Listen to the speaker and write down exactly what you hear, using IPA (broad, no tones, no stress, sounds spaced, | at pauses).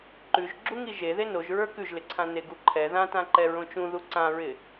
ǃ ʉ ʒ ɡ͡ǁ u ŋ i ʒ e ð e n o ʒ ɹ ə˞ k ʉ ʒ l ɪ ǀʰ ã n e ɡ u ǃʰ ɛ ð ã t ã ǃ ɛ ɹ õ t͡ʃ ũ ð u ǀ ã ɹ ɪ